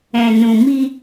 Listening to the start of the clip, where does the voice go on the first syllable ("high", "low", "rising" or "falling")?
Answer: low